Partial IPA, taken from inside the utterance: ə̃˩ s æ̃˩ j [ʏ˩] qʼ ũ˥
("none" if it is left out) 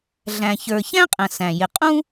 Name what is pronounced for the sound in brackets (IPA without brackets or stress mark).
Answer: ɪ˩